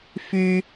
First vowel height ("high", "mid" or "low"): high